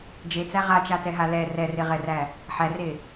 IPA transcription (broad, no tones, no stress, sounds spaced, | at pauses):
d͡ʒ e t͡s æ ʁ a t͡ʃ a t ɛ ɦ a l ɛ r ɛ r e ʁ ɛ r æ | ħ æ r e